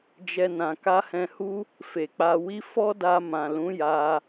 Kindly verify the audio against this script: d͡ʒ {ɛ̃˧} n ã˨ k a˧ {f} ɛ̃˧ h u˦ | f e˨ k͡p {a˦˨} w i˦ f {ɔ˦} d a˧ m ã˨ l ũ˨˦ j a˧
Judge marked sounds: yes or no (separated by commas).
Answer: no, no, no, yes